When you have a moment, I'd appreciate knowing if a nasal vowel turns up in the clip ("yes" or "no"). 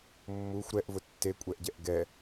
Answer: no